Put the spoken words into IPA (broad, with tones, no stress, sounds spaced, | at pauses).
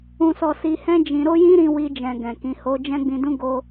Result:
ũ˧ s ɔ˧ s i˧ h ɛ̃˦ d͡ʒ ĩ˧ ɾ o˦ j ĩ˦ ɾ ĩ˧ w i˧ d͡ʒ ɛ̃˨ ɡ ɛ̃˨ k ĩ˨˦ h o˦ d͡ʒ ɛ̃˦ ɡ͡b ĩ˧ d ũ˦ ɡ o˧